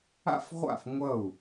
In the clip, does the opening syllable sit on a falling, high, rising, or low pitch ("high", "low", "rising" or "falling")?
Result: falling